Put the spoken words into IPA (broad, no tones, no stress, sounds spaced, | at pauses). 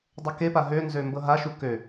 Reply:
dˤ ə k e p a ɦ ø n z ø m b ɤ ɦ a ʃ u k ø